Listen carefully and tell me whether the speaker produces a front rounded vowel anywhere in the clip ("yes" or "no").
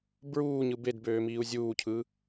yes